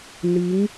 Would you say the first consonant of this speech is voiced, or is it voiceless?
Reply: voiced